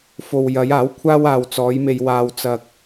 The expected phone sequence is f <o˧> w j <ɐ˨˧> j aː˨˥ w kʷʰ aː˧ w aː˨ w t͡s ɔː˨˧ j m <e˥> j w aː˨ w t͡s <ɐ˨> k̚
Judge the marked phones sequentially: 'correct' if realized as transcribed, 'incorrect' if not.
incorrect: o˨, correct, incorrect: e˨, correct

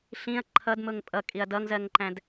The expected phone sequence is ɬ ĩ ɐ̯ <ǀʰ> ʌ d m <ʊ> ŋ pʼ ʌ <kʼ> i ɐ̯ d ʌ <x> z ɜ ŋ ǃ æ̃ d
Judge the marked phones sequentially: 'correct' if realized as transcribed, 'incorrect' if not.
incorrect: ǃʰ, correct, correct, incorrect: ŋ

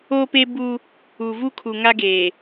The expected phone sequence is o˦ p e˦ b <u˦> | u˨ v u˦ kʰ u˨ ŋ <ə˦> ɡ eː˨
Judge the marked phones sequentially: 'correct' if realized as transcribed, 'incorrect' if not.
correct, incorrect: a˦

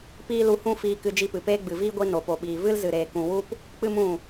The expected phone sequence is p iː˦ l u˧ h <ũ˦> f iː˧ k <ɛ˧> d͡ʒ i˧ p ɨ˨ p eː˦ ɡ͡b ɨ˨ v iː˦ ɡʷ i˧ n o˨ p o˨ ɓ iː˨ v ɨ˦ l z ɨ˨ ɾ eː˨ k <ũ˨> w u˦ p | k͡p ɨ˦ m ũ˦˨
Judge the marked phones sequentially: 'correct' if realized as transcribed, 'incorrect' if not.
correct, incorrect: ɨ˧, correct

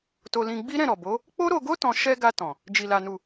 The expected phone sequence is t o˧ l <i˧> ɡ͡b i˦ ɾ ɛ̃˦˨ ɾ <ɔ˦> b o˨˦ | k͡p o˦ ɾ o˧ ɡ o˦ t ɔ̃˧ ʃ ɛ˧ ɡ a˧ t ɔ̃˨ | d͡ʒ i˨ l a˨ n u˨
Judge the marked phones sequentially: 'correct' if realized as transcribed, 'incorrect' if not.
incorrect: ĩ˧, incorrect: ɔ˨

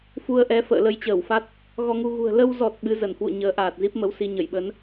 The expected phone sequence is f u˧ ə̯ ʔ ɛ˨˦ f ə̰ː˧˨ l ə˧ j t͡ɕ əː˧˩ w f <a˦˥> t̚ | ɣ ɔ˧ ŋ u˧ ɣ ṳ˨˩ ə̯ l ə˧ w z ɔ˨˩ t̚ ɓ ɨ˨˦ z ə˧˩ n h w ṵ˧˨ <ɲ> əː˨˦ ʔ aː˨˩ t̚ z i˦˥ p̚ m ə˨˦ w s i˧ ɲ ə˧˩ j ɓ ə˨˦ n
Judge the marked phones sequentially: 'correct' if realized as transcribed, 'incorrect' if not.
correct, correct

